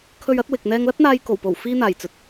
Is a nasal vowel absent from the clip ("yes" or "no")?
yes